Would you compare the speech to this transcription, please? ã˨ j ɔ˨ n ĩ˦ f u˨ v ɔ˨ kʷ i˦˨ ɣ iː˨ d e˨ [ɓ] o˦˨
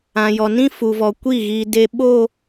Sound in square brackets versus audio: correct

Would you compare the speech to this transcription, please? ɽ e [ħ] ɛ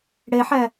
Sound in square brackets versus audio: correct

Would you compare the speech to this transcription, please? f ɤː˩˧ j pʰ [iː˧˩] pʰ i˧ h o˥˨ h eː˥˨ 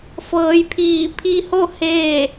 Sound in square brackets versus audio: correct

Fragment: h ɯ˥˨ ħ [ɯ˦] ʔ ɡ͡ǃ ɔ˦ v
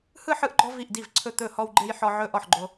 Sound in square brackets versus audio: correct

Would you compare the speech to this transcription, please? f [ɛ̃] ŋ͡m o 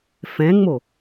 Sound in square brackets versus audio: correct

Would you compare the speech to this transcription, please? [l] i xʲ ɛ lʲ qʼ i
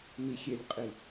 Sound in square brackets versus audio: incorrect: n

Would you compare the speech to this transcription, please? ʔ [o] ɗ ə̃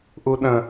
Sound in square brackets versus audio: incorrect: u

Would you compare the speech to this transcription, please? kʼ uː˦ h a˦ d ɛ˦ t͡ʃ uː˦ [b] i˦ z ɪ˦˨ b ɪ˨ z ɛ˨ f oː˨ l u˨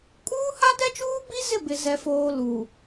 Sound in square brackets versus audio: correct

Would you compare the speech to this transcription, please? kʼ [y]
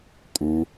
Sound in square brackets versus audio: incorrect: u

